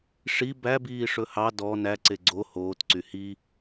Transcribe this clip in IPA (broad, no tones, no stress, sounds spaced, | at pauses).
ʂ i b æ b iː ʂ ɵ h ɑ d ɔ n æ ǀ e ɡ͡ǀ o h oː t ǀ y h i